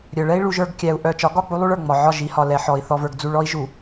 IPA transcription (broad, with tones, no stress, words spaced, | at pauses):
ɾʲœ˨ɭɛ˦i̯ ɭu˦ʒə˞˦ɡ kʲæ˨u̯ ʔœ˨t͡ʃɒ˨˦ɡɒ˦˨ k͡pu˦lˠu˦ɭə˞˨ ŋ͡mɒ˨ʕɒ˦˨ʒ i˨hɒ˨ lɛ˨ħɔ˨i̯ θɔ˨və˞˨ɡd͡zu˨ɭ ɔ˦i̯ʒu˨